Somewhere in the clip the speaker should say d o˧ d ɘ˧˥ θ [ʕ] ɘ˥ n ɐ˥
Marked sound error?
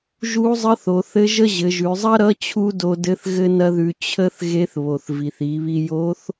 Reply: yes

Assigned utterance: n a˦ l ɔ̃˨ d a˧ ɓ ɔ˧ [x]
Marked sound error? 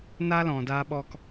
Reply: yes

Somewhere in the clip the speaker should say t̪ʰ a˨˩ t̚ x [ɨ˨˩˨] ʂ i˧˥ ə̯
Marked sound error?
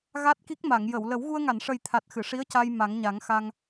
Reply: no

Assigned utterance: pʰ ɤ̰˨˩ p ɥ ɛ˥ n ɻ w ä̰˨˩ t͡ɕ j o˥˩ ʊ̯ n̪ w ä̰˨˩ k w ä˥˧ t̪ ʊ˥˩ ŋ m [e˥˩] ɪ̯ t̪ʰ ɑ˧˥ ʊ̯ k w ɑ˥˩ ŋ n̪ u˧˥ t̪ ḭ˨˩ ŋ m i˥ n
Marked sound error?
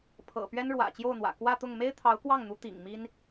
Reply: yes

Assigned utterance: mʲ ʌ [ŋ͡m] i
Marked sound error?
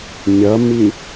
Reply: yes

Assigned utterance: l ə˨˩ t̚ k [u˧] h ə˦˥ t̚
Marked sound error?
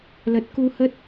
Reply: no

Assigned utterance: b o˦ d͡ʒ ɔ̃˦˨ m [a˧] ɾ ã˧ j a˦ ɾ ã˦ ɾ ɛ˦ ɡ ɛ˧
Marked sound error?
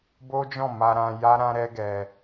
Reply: no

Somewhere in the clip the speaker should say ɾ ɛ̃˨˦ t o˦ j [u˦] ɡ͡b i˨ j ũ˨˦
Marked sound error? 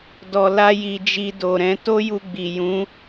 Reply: yes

